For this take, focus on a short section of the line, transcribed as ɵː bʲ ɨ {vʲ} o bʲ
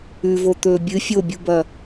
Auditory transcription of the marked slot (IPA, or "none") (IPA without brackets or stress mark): fʲ